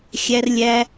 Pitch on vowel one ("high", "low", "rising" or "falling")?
high